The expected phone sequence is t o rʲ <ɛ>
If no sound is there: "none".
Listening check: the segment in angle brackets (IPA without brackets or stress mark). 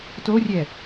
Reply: ɛ